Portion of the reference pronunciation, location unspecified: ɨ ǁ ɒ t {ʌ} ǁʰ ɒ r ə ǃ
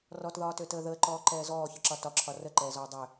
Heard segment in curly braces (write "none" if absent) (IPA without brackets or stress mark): ɒ